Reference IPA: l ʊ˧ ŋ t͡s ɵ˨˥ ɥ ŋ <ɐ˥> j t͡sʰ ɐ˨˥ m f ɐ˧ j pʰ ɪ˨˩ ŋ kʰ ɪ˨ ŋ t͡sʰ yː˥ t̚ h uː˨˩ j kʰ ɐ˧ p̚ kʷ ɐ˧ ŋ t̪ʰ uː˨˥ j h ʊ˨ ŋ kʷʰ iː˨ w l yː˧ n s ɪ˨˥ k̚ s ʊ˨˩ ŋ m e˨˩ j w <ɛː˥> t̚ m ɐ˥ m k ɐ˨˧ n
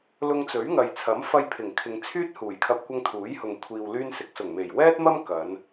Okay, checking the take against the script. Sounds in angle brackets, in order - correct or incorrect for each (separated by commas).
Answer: incorrect, correct